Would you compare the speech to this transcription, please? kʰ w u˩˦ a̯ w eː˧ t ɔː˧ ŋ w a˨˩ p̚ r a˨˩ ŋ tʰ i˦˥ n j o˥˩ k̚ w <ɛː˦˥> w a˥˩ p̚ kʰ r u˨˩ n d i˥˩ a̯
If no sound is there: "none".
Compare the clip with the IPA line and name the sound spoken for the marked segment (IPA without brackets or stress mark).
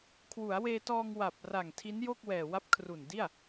ɛː˨˩